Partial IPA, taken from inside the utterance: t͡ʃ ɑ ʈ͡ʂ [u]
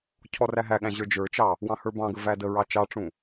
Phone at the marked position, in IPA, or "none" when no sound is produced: ũ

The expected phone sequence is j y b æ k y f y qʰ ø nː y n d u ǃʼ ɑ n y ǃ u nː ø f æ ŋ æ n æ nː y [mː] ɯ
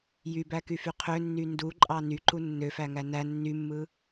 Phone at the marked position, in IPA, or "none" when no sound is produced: mː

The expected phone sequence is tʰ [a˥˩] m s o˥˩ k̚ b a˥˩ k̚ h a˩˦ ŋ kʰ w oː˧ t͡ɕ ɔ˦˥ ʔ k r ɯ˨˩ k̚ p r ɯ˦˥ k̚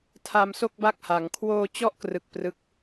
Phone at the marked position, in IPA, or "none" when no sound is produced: a˧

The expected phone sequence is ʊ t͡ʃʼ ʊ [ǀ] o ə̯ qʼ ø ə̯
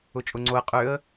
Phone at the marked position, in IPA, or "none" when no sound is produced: ŋ͡ǀ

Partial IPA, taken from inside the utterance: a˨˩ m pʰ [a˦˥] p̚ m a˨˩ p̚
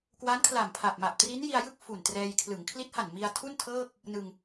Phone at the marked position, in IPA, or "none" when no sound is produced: a˨˩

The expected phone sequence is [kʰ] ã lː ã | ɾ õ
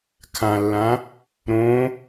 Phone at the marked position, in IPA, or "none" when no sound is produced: kʰ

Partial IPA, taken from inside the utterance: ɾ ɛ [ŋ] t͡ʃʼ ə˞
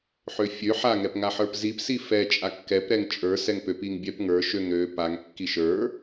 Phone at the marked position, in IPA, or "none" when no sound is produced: ŋ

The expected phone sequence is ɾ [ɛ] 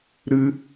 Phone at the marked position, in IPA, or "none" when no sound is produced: ɨ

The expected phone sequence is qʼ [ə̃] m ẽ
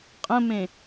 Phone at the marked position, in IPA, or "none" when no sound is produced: ə̃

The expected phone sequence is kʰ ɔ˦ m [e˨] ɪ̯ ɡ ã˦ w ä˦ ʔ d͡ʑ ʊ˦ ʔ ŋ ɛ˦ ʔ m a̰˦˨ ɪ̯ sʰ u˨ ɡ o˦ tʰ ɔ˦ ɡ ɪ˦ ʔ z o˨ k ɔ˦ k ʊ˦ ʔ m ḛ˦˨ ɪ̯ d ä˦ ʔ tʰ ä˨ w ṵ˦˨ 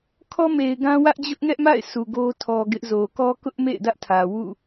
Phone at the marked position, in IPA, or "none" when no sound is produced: e˨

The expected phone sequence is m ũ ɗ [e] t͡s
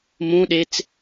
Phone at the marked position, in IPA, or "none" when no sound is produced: e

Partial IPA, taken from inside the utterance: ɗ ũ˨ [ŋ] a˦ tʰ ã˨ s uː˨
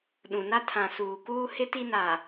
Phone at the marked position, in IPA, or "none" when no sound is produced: n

